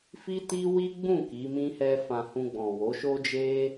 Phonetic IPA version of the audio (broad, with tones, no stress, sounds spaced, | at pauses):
f i˦ t i˦ w i˦ ɡ͡b ũ˦˨ k i˨˦ m ĩ˦ h ɛ˦ f ã˧ h ũ˧ ɡ͡b ɔ̃˨ w o˨˦ ʃ o˦ d͡ʒ e˦